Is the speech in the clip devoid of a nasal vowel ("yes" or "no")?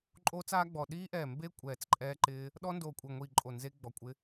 yes